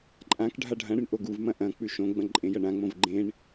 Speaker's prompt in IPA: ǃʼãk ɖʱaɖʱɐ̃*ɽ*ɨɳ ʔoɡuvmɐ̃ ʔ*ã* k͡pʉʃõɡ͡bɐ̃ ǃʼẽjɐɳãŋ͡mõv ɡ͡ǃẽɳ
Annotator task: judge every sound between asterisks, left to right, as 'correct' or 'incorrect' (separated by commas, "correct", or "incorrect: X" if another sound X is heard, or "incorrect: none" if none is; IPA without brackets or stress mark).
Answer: correct, incorrect: ɐ̃